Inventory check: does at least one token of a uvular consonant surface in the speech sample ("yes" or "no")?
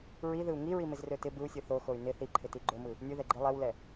no